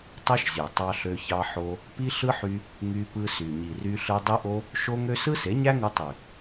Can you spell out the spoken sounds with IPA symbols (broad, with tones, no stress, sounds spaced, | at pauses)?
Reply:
tˤ ɯ˦ ʃ zʲ ø˨ tˤ ɑ˦ ɬ ø˦ ç ɑ˦ ħ o˦ | p i˦ ɬ ɯ˦ ħ y˧ | ŋ y˧ p ɯ˧ s y˨ ɲ i˨ r y˧ ɬ ɯ˧ dˤ i˦ ʔ o˦ | ʃ o˦ ŋ ø˦ s ɯ˦ s e˨˦ ɲ æ˦ ŋ u˧ tˤ y˨